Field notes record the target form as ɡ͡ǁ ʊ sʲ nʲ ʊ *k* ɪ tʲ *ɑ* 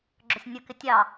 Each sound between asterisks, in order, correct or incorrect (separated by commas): correct, correct